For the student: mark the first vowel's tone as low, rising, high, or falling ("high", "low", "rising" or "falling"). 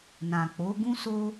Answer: low